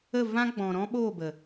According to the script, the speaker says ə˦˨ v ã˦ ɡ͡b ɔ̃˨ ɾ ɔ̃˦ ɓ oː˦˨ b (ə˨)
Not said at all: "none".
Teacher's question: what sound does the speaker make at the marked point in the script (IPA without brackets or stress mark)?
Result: ə˨